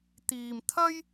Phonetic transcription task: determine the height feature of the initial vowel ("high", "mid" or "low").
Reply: high